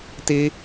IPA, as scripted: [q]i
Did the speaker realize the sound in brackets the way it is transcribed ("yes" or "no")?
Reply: no